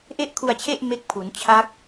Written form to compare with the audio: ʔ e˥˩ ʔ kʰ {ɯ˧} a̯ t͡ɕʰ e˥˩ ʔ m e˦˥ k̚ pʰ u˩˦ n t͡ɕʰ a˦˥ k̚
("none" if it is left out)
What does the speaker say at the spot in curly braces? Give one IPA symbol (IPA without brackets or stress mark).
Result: u˧